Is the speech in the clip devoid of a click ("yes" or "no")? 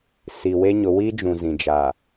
yes